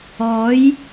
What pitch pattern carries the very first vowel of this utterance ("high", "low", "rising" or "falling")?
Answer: rising